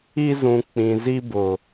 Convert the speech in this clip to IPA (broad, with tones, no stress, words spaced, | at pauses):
i˦zũ˨ k͡pĩ˨zi˦bʊ˨